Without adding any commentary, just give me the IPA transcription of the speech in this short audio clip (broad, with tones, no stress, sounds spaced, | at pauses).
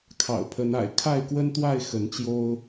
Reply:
kʰ ɑ̰˨˩ ʊ̯ pʰ ə˨˦ n a̰˨˩ ɪ̯ kʰ a˥˨ ɪ̯ k w ə˦ n t̪ w a˥˨ ɪ̯ x ə˨˦ n t͡ɕ j o˦ ʊ̯